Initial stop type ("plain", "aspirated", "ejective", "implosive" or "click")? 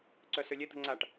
click